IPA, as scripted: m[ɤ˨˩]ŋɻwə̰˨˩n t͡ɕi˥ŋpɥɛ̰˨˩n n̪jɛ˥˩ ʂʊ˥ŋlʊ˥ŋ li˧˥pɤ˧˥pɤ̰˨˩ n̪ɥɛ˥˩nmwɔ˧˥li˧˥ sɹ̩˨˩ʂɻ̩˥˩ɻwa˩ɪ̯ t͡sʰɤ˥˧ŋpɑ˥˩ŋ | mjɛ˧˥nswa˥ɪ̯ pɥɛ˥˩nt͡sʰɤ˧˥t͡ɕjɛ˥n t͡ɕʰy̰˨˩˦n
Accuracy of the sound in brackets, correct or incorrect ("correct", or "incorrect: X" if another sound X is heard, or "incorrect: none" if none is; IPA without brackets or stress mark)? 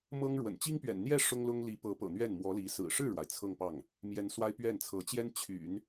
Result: incorrect: ɤ˥